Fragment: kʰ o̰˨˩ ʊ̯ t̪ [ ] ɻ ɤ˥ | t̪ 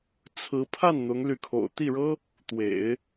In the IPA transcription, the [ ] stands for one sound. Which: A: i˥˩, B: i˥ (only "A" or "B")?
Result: A